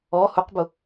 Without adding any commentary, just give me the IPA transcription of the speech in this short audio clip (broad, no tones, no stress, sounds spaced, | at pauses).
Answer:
ɔ h ʊ q b ʊ